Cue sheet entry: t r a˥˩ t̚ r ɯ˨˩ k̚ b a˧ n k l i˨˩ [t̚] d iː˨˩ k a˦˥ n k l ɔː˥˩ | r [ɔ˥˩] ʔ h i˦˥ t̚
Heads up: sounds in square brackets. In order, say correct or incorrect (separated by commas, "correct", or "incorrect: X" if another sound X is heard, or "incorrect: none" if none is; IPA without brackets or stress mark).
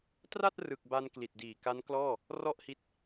correct, correct